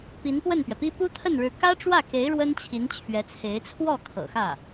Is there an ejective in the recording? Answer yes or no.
no